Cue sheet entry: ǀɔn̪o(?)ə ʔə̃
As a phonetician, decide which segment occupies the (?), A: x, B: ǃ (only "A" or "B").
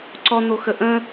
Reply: A